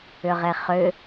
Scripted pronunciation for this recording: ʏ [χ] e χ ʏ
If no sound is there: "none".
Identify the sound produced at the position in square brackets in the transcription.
ʁ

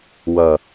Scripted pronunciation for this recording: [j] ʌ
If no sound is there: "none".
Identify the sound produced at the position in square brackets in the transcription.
w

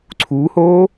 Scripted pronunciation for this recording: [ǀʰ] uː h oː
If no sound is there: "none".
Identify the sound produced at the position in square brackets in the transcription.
ǀʰ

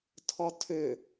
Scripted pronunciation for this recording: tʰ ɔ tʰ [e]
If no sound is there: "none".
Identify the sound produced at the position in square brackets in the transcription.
ø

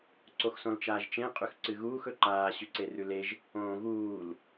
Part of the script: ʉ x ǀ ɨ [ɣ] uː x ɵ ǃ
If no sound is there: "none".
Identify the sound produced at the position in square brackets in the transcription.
ɣ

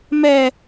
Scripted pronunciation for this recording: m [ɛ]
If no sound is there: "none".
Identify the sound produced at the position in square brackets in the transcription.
ɛ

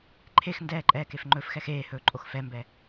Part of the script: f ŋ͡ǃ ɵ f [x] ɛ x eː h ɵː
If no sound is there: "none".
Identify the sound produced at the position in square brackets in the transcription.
x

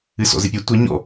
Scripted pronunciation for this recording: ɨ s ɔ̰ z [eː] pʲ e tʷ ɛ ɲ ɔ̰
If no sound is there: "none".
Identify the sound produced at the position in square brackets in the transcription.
e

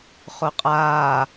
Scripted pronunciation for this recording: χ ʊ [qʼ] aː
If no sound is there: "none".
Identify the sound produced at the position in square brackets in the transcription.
qʼ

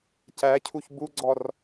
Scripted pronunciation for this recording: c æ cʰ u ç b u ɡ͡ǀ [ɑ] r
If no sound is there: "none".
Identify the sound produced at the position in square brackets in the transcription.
ɔ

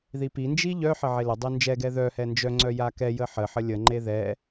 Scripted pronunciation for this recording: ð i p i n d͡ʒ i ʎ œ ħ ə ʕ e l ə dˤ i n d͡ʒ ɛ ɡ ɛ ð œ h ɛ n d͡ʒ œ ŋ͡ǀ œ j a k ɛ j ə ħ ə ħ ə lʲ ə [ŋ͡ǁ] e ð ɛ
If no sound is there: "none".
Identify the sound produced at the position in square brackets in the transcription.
ŋ͡ǃ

